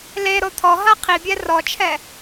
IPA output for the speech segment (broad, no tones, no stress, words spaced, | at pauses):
leɾo t̪ʰɔɦa qʰibʲɛ rɔt͡ʃʰɛ